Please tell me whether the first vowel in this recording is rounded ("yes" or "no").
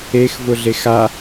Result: no